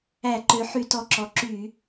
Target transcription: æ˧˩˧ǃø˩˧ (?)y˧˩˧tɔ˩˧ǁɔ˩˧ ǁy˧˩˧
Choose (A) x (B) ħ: B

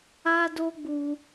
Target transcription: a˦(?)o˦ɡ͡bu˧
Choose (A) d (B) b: A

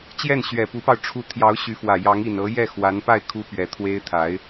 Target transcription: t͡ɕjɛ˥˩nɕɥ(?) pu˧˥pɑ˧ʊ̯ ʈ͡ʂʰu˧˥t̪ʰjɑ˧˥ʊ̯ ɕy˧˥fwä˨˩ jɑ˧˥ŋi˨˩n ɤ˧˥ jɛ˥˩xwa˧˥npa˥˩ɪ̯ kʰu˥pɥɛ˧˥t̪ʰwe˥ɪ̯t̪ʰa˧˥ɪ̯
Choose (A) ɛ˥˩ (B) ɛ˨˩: B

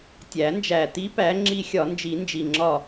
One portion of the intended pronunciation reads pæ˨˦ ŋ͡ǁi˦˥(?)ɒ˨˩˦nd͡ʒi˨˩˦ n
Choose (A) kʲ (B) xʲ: B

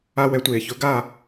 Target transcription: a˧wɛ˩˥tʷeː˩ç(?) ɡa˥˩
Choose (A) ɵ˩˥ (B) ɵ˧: A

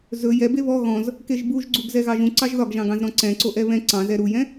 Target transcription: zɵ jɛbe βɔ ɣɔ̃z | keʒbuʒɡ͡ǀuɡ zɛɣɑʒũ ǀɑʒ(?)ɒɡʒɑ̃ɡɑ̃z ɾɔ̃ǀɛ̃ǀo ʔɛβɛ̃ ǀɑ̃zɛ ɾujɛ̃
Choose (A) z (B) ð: B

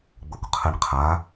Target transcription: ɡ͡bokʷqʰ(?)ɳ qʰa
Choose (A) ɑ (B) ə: B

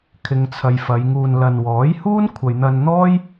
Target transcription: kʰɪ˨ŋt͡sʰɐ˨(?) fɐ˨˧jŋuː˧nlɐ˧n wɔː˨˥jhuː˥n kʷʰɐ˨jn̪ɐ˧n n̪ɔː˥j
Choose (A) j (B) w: A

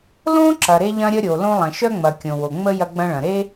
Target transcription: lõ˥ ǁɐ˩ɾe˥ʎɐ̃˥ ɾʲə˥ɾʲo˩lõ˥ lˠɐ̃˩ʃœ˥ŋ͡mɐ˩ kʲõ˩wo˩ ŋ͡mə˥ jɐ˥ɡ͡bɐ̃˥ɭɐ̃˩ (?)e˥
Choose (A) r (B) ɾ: B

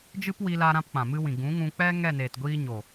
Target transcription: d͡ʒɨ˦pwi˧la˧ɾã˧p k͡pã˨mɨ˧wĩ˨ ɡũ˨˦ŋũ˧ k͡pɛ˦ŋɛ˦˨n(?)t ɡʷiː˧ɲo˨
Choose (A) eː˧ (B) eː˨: B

